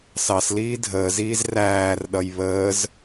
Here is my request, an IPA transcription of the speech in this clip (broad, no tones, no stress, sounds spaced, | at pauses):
s ɑ s l iː dʱ əː z iː z r æː r ɗ ʌ j β əː z